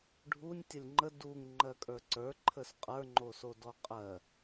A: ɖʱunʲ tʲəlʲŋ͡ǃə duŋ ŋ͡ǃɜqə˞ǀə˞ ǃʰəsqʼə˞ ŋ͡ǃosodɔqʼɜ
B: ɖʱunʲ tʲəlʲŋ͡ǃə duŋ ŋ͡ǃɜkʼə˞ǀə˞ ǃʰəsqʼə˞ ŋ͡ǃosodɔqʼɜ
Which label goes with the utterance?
B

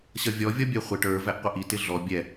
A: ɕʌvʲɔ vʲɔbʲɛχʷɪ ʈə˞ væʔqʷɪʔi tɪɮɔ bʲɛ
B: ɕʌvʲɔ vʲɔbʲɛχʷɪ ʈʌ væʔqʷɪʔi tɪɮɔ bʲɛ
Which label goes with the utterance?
A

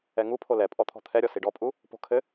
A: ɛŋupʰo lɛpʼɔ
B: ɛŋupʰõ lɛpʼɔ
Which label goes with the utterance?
A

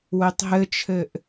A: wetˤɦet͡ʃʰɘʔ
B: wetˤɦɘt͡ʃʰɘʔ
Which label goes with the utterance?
B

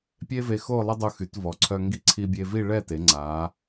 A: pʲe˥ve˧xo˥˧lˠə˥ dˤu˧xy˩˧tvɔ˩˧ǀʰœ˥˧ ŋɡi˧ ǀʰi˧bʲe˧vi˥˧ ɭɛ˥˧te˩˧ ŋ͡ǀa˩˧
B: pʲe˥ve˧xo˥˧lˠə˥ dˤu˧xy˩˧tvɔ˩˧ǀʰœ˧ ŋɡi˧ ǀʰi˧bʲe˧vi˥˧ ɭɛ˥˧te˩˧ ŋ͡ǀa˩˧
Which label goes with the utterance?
B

